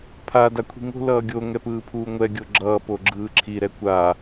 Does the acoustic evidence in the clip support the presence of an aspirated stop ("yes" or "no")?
yes